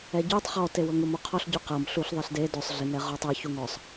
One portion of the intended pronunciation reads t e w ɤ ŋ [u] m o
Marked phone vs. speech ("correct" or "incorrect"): correct